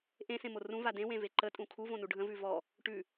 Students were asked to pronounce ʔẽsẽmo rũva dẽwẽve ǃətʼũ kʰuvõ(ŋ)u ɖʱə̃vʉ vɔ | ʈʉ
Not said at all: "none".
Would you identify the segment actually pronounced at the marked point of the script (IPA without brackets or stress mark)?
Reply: n